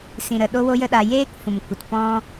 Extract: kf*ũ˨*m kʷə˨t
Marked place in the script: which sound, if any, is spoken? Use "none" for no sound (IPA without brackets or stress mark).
ũ˨